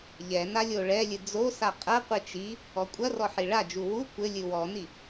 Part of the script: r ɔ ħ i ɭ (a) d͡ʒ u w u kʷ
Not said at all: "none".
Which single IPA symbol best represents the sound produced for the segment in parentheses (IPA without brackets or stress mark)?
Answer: a